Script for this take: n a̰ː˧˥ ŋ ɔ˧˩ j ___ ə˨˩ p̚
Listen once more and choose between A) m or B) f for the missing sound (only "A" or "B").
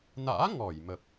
A